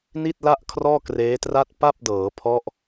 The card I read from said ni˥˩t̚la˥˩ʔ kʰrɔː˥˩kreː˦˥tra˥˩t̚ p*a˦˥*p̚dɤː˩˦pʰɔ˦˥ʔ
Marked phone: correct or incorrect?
incorrect